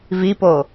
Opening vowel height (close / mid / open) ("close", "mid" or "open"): close